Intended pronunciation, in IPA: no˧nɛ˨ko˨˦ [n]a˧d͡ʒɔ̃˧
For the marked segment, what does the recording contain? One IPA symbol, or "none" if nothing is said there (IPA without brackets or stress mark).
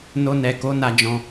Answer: n